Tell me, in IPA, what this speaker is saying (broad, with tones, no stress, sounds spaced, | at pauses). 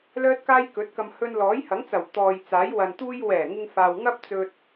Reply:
l œː˥ t̚ k aː˥ j k ɵ˨˥ t̚ k ɐ˧ m h ɵ˧ n l ɔː˨˥ j h ɐ˨˥ ŋ t͡s ɐ˨˩ w t̪ ɔː˨ j t͡s aː˨˥ j w ɐ˨ n t̪ uː˧ j w ɛː˨˩ ŋ ɪ˧ ŋ f aː˨ w ŋ ɐ˥ p̚ t͡s ɵ˧ t̚